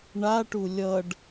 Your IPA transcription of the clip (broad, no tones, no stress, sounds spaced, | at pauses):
ɳ a ʈ u lʲ ʌ ɖ